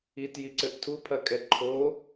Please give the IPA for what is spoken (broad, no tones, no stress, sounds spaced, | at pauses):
i t j i ǀ ɘ ʔ tʰ u pʰ ɐ kʼ ɛ ǃʰ o